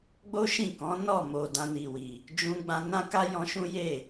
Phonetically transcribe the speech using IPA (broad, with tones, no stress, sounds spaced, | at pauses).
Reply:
ɡ͡b o˦ ʃ ĩ˦˨ k ɔ̃˨˦ n ɔ˦˨ m o˨ d ã˧ n i˨ w i˨ | d͡ʒ ũ˧ ɡ͡b ã˧ n ã˦ k a˦ j ɔ̃˧ ʃ ũ˦ j e˦˨